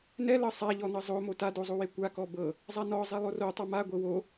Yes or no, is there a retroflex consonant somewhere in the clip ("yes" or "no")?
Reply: no